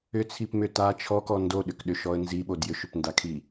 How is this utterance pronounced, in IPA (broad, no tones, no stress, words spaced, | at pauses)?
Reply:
ʏt͡sʰipmʏ ta t͡ʃʰɔkɔ ndoɗʏkɗʏʃɔə̯ nziɓod jʏʃʏpndakʰi